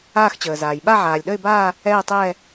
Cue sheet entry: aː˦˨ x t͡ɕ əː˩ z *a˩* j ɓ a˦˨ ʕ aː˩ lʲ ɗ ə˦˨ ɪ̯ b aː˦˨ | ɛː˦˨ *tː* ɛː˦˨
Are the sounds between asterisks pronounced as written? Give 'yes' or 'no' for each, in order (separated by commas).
no, no